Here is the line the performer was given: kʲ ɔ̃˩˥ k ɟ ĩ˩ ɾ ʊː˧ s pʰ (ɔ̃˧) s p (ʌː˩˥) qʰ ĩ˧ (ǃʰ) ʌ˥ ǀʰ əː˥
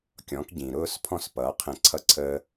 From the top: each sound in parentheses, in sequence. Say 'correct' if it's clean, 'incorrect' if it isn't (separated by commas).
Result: correct, correct, incorrect